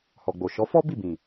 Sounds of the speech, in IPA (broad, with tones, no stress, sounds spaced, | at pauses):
h ɔ˨ ɡ͡b o˨ ʃ ɔ˨˦ f ɔ˦ b i˦˨ b ĩ˨